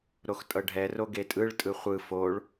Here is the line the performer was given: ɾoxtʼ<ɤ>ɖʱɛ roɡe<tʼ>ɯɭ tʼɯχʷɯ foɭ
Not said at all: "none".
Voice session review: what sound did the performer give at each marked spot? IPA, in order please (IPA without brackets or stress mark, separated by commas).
ɤ, tʼ